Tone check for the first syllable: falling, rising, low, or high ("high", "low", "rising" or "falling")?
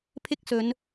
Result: high